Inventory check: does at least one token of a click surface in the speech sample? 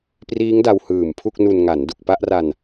no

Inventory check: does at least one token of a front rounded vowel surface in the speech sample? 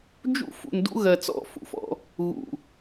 no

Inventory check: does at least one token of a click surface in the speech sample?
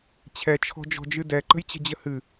yes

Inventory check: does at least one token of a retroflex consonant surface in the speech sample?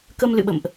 no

